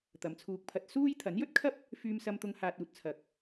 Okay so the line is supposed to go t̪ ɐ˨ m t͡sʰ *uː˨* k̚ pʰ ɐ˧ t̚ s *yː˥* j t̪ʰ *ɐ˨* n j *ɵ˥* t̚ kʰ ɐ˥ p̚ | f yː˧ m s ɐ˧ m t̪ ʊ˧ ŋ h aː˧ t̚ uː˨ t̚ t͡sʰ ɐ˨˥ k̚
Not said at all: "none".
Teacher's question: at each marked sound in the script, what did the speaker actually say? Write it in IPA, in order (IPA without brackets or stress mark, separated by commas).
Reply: uː˧, uː˥, ɐ˨˥, ɵ˥